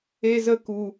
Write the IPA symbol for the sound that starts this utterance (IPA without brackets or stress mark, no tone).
e